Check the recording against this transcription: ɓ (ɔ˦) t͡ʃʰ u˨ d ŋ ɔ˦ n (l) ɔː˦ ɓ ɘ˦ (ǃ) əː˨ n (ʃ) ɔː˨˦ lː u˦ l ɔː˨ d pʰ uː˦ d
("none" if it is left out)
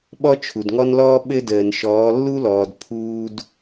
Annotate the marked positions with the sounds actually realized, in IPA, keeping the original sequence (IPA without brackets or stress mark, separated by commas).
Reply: ɔ˦, l, d, ʃ